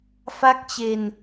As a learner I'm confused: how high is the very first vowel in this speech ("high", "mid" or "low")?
low